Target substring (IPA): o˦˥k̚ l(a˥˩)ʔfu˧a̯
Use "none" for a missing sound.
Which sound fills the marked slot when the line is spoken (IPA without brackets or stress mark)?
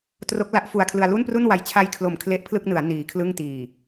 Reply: a˦˥